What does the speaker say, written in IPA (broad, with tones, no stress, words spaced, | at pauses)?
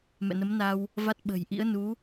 mɛ̰˧˨nə˨˦mna˧w | va˦˥t̚ɓə̤˨˩j ʔḭ˧˥ə̯nu˨˦